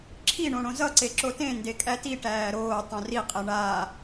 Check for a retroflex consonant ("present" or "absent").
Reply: present